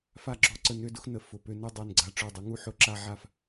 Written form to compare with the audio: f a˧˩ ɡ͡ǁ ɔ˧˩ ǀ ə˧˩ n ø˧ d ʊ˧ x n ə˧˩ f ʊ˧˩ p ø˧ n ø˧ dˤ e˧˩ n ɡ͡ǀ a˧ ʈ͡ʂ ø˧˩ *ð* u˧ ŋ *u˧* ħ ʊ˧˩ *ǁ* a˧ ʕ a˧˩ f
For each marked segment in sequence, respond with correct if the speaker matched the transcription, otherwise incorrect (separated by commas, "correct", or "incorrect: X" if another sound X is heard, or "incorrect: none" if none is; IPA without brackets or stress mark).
incorrect: dˤ, correct, correct